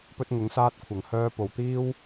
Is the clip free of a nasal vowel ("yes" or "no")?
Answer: yes